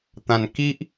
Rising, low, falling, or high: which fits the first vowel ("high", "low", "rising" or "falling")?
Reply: low